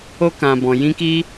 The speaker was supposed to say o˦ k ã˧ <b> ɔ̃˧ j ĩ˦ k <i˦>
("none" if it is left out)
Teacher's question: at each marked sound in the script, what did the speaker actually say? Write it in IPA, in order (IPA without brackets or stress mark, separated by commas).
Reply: b, i˦